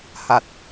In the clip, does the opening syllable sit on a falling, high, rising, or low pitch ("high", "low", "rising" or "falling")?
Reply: low